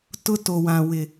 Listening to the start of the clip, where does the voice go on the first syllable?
high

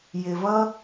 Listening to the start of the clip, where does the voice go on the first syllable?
low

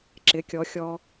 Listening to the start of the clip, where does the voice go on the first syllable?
rising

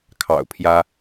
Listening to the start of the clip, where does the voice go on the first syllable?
low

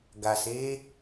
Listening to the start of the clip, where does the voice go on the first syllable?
low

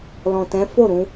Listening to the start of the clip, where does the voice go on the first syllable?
low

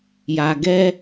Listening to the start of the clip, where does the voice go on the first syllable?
low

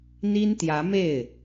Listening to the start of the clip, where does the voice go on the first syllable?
high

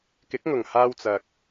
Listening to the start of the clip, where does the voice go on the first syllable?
rising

